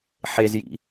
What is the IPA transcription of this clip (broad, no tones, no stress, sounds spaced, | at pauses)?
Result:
ħ e z j ḭ